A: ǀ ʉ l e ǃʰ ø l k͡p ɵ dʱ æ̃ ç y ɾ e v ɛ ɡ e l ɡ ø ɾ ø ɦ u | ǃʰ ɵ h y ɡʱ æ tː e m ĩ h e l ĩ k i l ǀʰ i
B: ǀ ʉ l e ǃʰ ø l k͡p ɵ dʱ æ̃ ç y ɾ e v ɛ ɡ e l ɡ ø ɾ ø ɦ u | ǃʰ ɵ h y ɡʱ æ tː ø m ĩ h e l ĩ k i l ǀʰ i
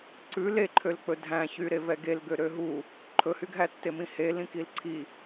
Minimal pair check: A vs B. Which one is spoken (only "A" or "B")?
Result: A